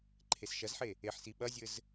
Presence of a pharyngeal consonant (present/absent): present